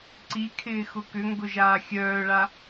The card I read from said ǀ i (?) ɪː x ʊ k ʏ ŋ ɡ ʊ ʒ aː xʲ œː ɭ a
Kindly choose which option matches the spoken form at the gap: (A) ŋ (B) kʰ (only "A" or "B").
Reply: B